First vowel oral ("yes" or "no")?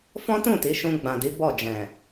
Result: no